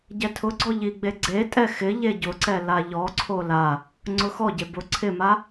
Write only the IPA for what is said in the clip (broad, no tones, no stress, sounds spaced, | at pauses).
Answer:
ɟ ɛ tʰ ʊ ɡ͡ǀ ɔ ʎ i ɡ͡b e ɡ͡ǀ e tʼ ɛ x ɪ ʎ e ɟ ʊ ǀ ɛ l a ʎ ɔ ǀʰ o l a | ŋ͡ǀ ʊ x ɔ ɟ e b ʊ ǀʰ ɪ m a